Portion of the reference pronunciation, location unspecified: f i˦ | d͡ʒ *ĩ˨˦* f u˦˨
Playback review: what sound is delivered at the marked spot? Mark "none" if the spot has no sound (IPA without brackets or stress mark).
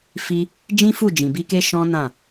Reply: ĩ˦